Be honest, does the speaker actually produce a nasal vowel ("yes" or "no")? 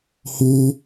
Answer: no